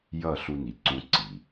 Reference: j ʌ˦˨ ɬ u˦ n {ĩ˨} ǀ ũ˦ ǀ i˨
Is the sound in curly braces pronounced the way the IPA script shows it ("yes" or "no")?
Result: no